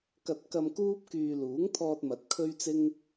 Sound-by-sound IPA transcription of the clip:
k ɐ˧ t̚ k ɐ˧ m k uː˥ p̚ k yː˧ l uː˨˥ ŋ t̪ʰ ɔː˧ t̚ m ɐ˨˥ t̚ kʰ ɵ˥ ɥ t͡s ɪ˥ ŋ

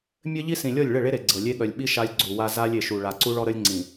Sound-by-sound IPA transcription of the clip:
mʲ ɘ˦ ʎ i˦ s ĩ˨ lʲ ɔ˦˨ lʲ ɭ ɘ˦˨ ɭ e˦ ɾ e˨ ɡ͡ǀ ɤ˨ lʲ e˦ ɠ œ˨ lʲ ɓ i˦ ʃ a˦ lʲ ɡ͡ǀ u˨ w a˦ z a˦ lʲ e˨ ʃ u˨ ɭ a˨ ǀ u˦ ɭ ɔ˦ ɾ ə˦ lʲ ŋ͡ǀ ĩ˨

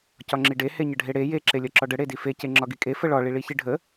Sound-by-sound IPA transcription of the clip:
c ɒ ŋ͡ǁ i ɖ e h e ɲ ə ɖʱ e ɽ e j e ǁ e lʲ ɒ ǁ ɒ ɖ ə ɽ e d i f e c e ŋ͡ǁ ɒ ɡ i kʼ e f ə ɭ ɒ ɭ i ɭ i ç i ɖʱ ə

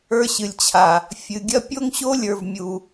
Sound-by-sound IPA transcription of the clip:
ə˞˦ ɕ ɨ˨ lʲ t͡ɕʰ a˨ | fʲ ɨ˨ ɡʲ ɐ˦ pʲ o˦ ŋ ɕ o˦ lʲ ə˞˨ v mʲ u˨

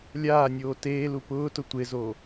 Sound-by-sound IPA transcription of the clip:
lʲ aː nʲ oː t eː l u p ʊː t ʊ tʷ e z o

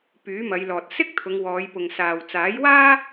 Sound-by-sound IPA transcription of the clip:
p yː˨˥ m ɐ˨˧ j l ɔː˨ t̚ s ɪ˥ k̚ t̪ʰ ʊ˨˧ ŋ w ɔː˨˧ j p ʊ˨ ŋ s aː˨ w t͡s aː˨˥ j w aː˥

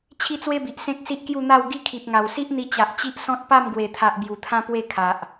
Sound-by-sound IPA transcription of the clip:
t͡ɕʰ i˦ t͡s w e˦ b i˨ ʔ s ẽ˦ k̚ s i˦ ʔ k j u˥˧ n̪ a˥˧ w ɡ i˥˧ kʰ i˨ p̚ ŋ a˨˩ w s i˦ ʔ n̪ i˧ t͡ɕ a˨ ʔ t͡ɕ i˦ ʔ s ɔ̃˦ t̚ p a˥˧ m ɡ w e˨˩ t̪ʰ a˨ ʔ b j u˨˩ t̪ʰ ã˦ p w e˥˧ kʰ a˨ ʔ

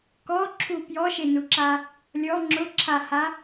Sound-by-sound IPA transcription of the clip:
k ɔ ǁʰ u p j ɔ ʃ e n u ǁ a | lʲ ɔ ŋ͡ǁ ʊ ǁʰ a h a

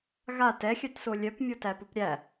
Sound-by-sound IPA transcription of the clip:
ɣ a t ɛ xʲ œ t s o lʲ œ p mʲ o t æ p ʊ p ɾʲ æ

